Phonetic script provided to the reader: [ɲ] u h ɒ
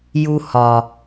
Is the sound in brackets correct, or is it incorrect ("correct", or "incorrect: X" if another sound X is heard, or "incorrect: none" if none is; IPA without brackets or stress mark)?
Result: incorrect: j